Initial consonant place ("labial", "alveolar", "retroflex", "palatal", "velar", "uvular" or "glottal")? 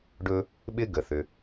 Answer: retroflex